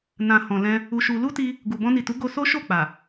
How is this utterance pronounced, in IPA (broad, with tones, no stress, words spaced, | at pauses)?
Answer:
nã˨hɔ̃˨lɛ̃˧ | u˧ʃu˧ lu˦ti˧ | ɡu˨bɔ̃˧ni˨tu˨˦ ɡo˧so˦ʃo˦˨ k͡pa˨